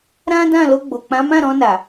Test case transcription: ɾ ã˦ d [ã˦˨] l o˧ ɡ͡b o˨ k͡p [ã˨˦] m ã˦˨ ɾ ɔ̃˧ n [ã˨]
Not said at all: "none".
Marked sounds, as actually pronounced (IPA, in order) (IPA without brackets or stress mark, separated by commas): ã˦˨, ã˨˦, a˨